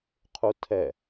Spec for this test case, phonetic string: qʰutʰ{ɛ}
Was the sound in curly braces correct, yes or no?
yes